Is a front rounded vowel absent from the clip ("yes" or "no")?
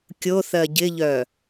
no